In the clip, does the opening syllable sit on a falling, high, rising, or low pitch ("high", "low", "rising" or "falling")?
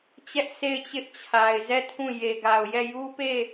high